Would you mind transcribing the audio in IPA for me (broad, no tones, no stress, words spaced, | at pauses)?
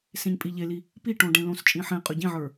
sẽɲpʼiʎeli | piʈõ ɖẽlõst͡ʃʼĩ ħẽqʼɵ ɟĩʕə˞